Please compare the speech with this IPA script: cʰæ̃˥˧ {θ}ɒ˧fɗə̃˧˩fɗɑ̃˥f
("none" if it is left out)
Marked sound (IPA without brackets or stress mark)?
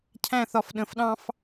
θ